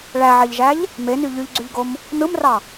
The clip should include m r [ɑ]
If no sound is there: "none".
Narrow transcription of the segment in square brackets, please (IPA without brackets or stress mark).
ɑ